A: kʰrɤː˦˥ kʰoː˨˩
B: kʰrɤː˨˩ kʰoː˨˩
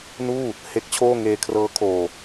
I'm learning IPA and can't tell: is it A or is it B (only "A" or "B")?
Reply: A